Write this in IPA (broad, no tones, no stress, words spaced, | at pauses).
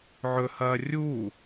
ʕɵhɐː rʲu